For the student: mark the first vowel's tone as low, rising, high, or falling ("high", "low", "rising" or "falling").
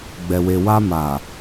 low